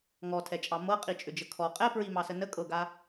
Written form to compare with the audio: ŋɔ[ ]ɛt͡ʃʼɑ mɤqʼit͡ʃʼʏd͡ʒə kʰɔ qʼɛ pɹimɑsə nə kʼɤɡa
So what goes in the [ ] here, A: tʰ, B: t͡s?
A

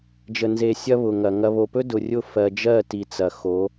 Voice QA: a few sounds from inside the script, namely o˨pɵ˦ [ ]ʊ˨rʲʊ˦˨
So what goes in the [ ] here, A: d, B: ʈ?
A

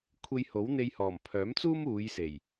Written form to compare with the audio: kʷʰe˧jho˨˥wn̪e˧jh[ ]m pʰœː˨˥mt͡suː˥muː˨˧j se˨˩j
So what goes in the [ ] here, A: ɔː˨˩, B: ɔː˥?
A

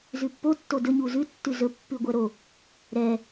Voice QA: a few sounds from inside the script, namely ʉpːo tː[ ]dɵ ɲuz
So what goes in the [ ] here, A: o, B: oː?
A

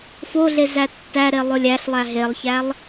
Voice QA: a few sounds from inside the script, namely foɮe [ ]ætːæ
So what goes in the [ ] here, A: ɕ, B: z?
B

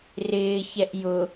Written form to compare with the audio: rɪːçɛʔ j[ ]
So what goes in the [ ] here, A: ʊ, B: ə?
A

